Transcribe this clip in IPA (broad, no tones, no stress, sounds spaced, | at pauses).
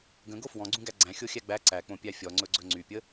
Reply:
ɡ ə̃ ɡ o f w ɔ̃ ɡ͡ǀ ũ ɡ æ ɡ͡ǀ æ̃ xʲ o xʲ æ ɡ͡b æ ǀ æ k͡p õ pʲ æ fʲ ɔ ŋ͡ǀ ɵ ɡ͡ǀ ɵ ŋ͡ǀ y pʲ ə